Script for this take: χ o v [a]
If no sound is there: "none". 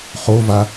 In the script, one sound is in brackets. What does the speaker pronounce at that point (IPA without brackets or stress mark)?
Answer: a